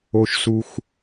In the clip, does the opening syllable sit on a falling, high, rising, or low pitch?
low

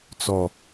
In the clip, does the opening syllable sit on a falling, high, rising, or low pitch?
falling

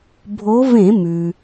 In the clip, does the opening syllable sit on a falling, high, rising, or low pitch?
rising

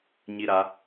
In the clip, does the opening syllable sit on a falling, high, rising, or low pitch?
high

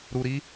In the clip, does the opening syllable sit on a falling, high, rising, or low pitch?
low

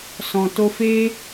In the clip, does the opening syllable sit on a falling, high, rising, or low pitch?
low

